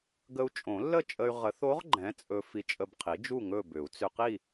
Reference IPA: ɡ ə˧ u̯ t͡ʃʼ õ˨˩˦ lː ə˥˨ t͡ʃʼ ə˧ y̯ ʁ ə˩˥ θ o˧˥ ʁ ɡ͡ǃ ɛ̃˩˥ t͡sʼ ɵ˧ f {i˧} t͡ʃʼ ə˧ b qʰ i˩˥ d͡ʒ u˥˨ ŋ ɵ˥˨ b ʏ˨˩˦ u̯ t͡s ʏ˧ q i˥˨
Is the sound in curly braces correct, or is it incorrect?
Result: correct